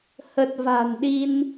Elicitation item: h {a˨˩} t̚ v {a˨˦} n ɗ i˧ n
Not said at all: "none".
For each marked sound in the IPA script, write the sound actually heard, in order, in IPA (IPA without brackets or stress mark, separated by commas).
ə˨˩, a̤˨˩